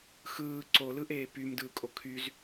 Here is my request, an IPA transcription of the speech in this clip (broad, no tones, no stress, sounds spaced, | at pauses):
x ɯː ǀ o l ɯ ʔ eː p y m d ɯː kʼ o kʰ y z